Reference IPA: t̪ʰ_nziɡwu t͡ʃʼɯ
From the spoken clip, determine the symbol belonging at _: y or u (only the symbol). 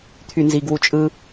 y